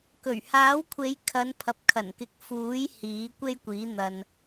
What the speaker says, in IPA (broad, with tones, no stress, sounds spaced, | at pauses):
k ɵ˨˩ ɥ h aː˨˥ w kʷʰ e˨˧ j kʰ ɐ˨˧ n pʰ ɐ˨ p̚ kʰ ɐ˨˩ n k ɪ˨˥ k̚ f uː˨˥ j h iː˨˥ kʷ e˥ j kʷ iː˨˥ n̪ ɐ˨ n